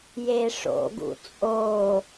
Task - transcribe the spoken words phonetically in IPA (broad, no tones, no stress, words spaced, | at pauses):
jeʂo̰ɡṵ t͡sʼo